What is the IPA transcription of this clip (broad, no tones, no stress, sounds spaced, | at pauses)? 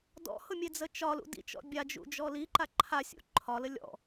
d ɔ̰ h ʊ mʲ e d͡z ə t͡ʃ ɒ l ṵ d ḭ t͡ʃ ɔ̰ bʲ a d͡ʒ ṵ d͡ʒ ɔ l i ǃ a ǃʰ a sʲ ṵ ǃʰ ɒ l ə lʲ ɔ̰